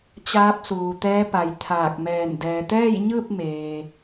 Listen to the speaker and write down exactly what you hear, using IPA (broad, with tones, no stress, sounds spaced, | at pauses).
t͡ɕ aː˧˥ p̚ s uː˩ t̪ ɛː˧˥ p a˩ j t̪ʰ aː˧˩ k̚ m ɛː˧˩ n d ɛː˩ t̪ ɛː˥˨ j ɲ ɯː˥˨ p̚ m eː˩